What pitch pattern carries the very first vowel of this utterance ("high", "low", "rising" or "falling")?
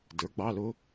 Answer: rising